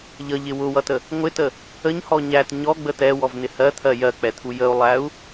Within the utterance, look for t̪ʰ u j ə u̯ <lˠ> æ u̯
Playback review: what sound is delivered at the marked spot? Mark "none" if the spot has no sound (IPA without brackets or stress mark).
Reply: lˠ